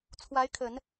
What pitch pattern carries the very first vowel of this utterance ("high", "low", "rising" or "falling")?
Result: rising